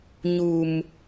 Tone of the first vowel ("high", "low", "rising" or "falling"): low